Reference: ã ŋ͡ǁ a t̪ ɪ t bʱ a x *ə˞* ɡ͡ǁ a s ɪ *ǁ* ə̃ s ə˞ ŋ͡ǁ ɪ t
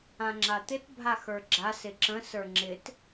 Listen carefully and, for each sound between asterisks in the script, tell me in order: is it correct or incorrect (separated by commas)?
correct, correct